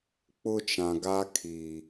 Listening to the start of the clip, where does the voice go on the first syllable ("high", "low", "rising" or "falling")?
high